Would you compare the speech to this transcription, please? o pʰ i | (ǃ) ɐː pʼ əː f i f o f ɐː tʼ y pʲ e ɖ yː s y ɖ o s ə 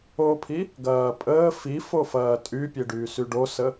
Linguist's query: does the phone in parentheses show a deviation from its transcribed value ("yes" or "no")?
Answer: yes